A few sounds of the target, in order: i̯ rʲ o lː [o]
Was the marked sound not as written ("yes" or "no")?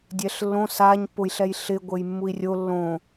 yes